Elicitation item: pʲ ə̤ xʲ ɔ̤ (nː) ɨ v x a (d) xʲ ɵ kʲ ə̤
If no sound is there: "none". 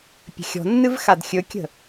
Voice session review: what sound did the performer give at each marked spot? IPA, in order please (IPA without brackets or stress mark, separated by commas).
nː, d